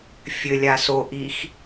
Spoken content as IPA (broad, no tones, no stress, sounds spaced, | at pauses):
fʲ ɘ lʲ a s o ʔ i x